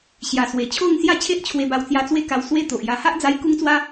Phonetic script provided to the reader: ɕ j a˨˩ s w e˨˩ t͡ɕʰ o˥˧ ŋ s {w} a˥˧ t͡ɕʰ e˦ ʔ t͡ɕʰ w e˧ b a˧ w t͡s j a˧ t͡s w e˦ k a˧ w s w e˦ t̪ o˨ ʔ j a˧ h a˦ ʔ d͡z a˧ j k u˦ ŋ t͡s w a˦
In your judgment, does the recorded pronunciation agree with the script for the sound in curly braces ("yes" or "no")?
no